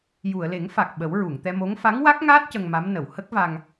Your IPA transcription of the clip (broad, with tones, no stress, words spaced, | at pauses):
ju˨˩˨ə̯le˨˩˦ŋfa˨˩k̚ ɓə˨˩˦wɹu˨˩˨ŋt̪ɛ˧mo˧˥ŋ fa˧˥ŋwa˦˥k̚ŋaː˦˥t̚ cə˧ŋma˧˥m nə˨˩˨whə˦˥k̚va˧ŋ